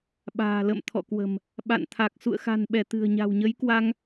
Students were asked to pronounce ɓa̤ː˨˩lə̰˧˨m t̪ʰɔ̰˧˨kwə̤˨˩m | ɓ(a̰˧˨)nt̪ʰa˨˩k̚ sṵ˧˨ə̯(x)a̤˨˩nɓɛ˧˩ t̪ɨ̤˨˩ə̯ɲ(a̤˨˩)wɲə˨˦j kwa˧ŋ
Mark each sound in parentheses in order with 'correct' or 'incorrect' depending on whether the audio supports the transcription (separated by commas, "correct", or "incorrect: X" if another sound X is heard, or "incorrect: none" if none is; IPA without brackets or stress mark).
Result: correct, correct, correct